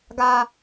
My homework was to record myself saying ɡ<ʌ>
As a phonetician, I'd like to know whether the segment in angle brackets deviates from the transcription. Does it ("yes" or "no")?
yes